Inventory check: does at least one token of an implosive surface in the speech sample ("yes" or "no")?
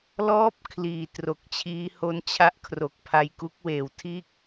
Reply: no